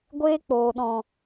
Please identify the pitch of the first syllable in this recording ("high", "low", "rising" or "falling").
high